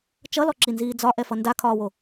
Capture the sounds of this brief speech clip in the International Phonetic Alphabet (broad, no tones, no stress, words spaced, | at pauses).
t͡ʃʌlɔǁinziː d͡zɒʔɛfʌ ndakʰɒːwo